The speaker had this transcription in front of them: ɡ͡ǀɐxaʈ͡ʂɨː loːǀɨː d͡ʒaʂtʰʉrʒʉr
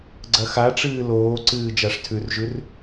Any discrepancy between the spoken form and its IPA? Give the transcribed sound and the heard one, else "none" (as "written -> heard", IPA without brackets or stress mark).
none